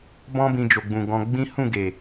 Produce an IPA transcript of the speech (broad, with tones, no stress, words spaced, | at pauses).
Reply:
bɔ̃˦bĩ˧d͡ʒo˨ɡ͡bũ˨ ɡɔ̃˧ɡ͡bĩ˦ hũ˦˨ɡe˨